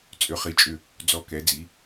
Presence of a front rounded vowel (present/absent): present